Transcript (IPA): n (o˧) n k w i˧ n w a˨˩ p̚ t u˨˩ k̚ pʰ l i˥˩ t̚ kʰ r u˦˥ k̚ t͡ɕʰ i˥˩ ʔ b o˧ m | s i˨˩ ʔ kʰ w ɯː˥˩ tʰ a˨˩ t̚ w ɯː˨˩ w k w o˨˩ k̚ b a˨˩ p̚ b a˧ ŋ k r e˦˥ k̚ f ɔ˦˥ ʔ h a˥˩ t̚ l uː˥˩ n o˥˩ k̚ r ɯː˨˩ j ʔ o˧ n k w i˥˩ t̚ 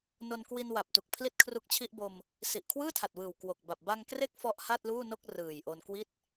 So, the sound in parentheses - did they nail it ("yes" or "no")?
yes